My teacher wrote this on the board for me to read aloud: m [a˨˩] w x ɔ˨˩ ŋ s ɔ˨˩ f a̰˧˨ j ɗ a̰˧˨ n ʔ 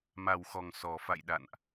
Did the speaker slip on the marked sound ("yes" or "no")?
no